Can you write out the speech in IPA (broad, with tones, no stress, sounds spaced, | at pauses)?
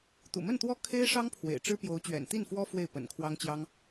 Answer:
t̪ ṵ˨˩ m ə˥˩ n t̪ w ɔ˥ kʰ e˥ ɪ̯ ʂ ɑ˥ ŋ pʰ w ḛ˨˩ ɪ̯ ʈ͡ʂ ɻ̩˥ p j o˧˥ ʊ̯ t͡ɕ ɥ ɛ̰˨˩ n t̪ i˥˩ n f w ɔ˥ f w e˥˩ ɪ̯ p ə̰˨˩ n kʰ w ɑ˥ ŋ t͡ɕ j ɑ˥ ŋ